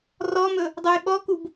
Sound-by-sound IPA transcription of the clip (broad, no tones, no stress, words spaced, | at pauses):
rɔmɵ | dˤojɓɔkub